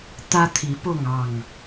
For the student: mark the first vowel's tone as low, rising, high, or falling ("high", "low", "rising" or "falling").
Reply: high